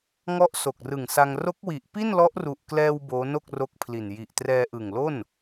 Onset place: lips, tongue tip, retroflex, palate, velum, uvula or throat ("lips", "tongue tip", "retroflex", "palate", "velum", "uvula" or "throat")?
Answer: velum